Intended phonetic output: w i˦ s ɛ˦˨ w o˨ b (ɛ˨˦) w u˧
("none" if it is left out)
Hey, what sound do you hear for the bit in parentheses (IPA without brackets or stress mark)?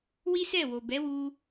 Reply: ɛ˨˦